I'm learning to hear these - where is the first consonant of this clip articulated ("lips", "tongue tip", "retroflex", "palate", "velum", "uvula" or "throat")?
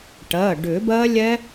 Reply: retroflex